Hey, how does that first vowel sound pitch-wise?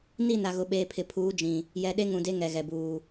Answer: falling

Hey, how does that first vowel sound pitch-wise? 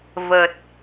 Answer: low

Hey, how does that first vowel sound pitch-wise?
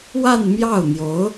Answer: falling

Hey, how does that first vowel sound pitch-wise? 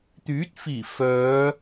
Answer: rising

